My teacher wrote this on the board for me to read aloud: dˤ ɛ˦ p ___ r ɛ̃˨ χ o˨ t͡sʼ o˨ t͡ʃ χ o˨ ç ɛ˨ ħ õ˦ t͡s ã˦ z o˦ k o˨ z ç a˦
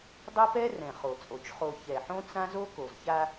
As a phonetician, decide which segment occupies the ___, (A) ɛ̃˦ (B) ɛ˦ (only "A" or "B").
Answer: B